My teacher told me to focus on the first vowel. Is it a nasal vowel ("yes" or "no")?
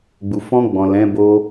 no